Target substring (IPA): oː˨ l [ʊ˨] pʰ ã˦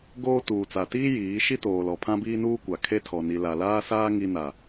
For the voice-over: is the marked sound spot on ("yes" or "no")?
no